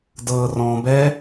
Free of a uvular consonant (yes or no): yes